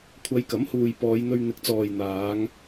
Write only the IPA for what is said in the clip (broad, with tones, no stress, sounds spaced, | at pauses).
kʷʰ ɐ˨˧ j k ɐ˨˥ m h uː˨ j p ɔː˨˧ j n̪ ɵ˧ ɥ n̪ ɪ˨˥ k̚ t͡s ɔː˨ j n̪ aː˨˧ ŋ